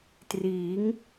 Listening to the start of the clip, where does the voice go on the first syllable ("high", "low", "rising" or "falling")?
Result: rising